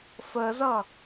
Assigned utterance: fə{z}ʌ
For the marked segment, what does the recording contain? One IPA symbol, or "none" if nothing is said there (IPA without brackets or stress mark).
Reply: z